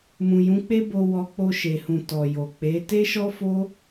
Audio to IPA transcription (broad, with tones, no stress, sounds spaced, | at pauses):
m ũ˨ j ũ˨˦ k͡p e˦ b o˧ w ɔ˧ k͡p o˧ ʃ e˨ h ũ˨ t ɔ˨ j o˨ k͡p e˨˦ t e˦ ʃ ɔ˦ f o˦